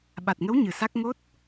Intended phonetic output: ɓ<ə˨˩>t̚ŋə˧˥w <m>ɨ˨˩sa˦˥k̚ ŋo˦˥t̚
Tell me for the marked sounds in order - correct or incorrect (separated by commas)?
incorrect, incorrect